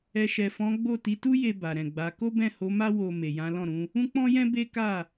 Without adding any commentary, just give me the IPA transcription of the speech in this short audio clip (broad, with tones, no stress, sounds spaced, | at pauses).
ɛ˨ ʃ ɛ˨ f ɔ̃˨˦ ɡ͡b o˦˨ t i˨˦ t u˦ j e˧ b a˨ ɾ ɛ̃˨ ɡ͡b a˨˦ k o˦ b ɛ̃˦˨ h o˨˦ m a˦ w o˧ m e˨ j ã˨˦ l ɔ̃˦˨ ɾ ũ˨˦ | ũ˦ k͡p ɔ̃˦ j ɛ̃˦ b e˦ k a˦˨